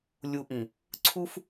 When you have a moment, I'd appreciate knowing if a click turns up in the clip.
yes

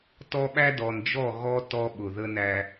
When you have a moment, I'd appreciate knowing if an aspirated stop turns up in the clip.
no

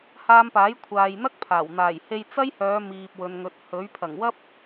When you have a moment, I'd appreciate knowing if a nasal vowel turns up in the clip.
no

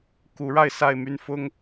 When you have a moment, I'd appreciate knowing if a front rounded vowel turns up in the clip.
yes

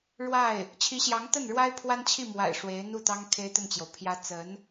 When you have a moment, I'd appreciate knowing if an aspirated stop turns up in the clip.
yes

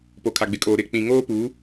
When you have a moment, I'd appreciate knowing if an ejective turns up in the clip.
yes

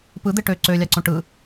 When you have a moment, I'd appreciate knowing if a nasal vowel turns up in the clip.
yes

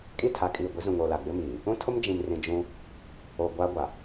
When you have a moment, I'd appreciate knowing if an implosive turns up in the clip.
no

